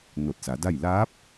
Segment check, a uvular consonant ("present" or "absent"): absent